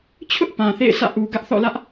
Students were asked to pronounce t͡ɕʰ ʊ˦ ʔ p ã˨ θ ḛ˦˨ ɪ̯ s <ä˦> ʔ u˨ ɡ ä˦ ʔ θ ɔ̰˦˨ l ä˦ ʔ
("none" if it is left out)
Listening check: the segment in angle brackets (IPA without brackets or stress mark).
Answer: ä̰˦˨